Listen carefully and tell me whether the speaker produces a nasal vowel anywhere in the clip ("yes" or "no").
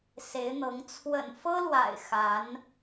no